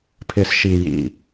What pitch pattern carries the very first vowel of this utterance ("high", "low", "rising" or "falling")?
low